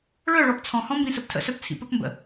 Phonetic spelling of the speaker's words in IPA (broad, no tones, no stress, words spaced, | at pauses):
ɭœɭɔp t͡sʰɔ̃hɔ̃ mbĩsəptʰə̰sœp t͡sʰḭpəpmbə̰